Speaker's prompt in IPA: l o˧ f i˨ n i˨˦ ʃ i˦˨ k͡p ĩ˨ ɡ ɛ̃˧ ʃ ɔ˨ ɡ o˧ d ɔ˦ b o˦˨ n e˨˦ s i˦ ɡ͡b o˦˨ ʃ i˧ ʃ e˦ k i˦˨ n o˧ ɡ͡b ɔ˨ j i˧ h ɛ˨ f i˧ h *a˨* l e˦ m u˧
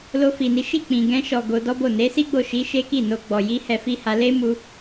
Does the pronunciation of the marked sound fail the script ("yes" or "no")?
yes